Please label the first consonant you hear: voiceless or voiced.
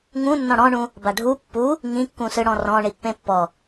voiced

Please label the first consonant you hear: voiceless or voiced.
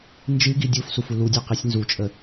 voiced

